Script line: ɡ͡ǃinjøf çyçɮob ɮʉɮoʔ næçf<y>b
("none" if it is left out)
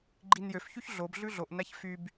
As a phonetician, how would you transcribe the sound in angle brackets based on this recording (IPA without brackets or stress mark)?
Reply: y